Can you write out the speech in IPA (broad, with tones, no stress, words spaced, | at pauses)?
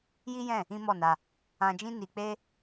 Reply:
ji˦jɛ̃˦˨ | ĩ˦mɔ˦˨na˧ | ã˧d͡ʒĩ˦ ni˧k͡pe˦